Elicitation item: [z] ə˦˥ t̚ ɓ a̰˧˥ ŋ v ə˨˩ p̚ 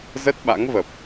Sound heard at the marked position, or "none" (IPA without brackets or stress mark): z